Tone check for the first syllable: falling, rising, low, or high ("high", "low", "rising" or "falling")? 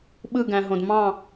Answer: falling